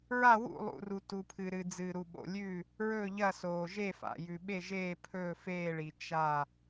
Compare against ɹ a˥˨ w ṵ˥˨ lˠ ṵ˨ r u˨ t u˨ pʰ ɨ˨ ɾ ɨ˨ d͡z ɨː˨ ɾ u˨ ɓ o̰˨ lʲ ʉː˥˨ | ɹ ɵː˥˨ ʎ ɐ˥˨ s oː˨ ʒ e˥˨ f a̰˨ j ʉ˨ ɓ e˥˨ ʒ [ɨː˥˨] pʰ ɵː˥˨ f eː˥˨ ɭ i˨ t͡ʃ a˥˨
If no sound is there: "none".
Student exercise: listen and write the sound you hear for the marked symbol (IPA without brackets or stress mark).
eː˥˨